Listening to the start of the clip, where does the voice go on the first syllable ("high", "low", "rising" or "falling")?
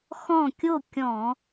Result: falling